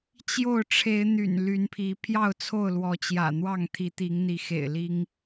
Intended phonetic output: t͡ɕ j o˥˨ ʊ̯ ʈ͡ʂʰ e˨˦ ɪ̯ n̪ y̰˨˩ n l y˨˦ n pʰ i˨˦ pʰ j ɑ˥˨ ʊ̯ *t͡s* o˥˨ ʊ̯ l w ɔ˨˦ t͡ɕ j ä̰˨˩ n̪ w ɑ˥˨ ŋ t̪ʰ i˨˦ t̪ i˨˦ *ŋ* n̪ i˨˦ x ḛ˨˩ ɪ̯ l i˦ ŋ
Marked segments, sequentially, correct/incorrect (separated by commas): incorrect, correct